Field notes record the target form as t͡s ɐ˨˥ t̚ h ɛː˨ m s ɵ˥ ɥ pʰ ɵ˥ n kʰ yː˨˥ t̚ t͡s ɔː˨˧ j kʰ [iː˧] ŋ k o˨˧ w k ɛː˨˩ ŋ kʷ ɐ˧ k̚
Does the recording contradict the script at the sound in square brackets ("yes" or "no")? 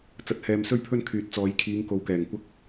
yes